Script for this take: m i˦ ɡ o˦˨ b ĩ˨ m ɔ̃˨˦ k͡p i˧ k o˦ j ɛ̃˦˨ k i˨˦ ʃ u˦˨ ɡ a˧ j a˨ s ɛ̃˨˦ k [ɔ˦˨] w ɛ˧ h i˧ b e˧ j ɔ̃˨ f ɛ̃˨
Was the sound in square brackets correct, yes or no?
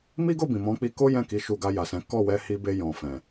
yes